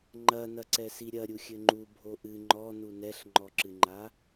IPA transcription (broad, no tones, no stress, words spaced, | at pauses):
ŋ͡ǃɐnɐǀɛ siɾʲɐ ɾʲuxʲɘŋ͡ǃu bʱoʔɨ ŋ͡ǃɔnu nɛɬŋ͡ǃɔǁɨŋ͡ǃa